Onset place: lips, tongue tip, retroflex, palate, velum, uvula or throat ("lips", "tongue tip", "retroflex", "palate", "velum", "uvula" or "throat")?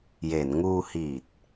palate